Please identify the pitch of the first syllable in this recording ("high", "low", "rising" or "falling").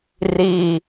low